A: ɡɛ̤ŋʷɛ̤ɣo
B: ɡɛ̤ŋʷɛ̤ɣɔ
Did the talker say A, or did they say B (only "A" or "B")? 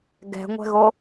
A